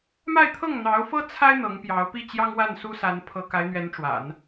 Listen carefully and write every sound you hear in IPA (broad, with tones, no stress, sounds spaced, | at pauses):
m a˥˧ ɪ̯ t̪ʰ ɤ˥˩ ŋ n̪ ɑ˧˥ ʊ̯ f ɤ˥ t͡sʰ a˥ ɪ̯ n̪ ɤ˧˥ ŋ p j ɑ˧˥ ʊ̯ p i˥˩ t͡ɕ j ɑ˥ ŋ w a˥˩ n s u˥ s a˧˥ n pʰ ɤ˧˥ k a˧˥ ɪ̯ n̪ ɥ ɛ˧˥ n ʈ͡ʂ w a̰˨˩˦ n